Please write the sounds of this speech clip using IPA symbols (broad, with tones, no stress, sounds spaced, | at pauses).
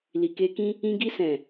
l i˨ k e˧ k ĩ˦ | ĩ˧ ɡ i˧ s ɛ̃˨